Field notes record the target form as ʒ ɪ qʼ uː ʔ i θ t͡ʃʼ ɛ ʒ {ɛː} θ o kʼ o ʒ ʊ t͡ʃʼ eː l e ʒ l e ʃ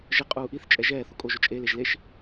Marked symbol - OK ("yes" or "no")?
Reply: yes